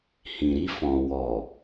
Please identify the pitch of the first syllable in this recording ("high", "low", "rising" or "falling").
low